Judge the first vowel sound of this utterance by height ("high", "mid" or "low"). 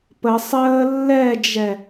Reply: mid